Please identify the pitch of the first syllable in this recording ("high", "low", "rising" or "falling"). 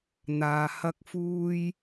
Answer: low